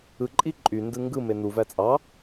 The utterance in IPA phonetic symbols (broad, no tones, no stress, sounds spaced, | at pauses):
ɯ ǃʼ i ǃʼ y n d ɯ ŋ ɡ ɯ m e n u v æ t͡sʼ ɑ